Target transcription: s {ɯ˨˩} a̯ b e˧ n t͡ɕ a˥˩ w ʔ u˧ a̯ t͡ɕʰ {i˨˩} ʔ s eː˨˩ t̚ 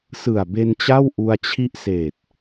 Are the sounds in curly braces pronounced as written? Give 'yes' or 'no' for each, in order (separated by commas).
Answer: yes, no